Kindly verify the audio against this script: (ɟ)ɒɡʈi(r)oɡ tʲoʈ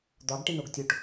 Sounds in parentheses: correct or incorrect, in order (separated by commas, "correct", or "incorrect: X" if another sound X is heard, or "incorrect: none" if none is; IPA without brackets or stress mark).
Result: incorrect: d̪, incorrect: n